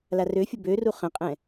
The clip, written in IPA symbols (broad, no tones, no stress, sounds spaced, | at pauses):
l a r ø fʲ ʊ b ø r u χ ə̃ qʼ ɛ̃